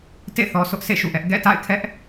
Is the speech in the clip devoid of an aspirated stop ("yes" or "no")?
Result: no